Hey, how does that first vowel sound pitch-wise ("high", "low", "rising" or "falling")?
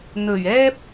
low